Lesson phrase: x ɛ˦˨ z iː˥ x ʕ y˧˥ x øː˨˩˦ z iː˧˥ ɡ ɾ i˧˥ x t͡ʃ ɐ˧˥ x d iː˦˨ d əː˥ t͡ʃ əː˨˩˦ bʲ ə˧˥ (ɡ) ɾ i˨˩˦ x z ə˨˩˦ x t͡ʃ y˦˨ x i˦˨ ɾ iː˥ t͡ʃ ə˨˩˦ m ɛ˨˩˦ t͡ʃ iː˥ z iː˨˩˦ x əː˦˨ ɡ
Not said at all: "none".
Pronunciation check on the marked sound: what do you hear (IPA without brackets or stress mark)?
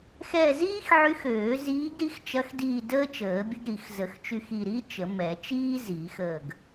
ɡ